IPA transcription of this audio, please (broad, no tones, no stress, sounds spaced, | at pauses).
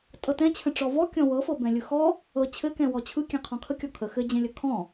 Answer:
tʼ ɤ t ɛ̃ t͡ɕʰ ə̃ ʈ͡ʂ ɔ v ɔ kʲ ɔ̃ w ɤ f ɤ b ɛ̃ lʲ ɯ x ɔ | ɤ t͡ɕʰ ɘ k ɛ̃ w ɔ t͡ɕʰ ɯ kʲ ɛ̃ qʰ ɔ̃ kʰ ə kʲ ɔ kʰ ə x ɘ d͡ʑ ɛ̃ lʲ ə kʰ ɔ̃